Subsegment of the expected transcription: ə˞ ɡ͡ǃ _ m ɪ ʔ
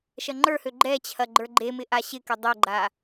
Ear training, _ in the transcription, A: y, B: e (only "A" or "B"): B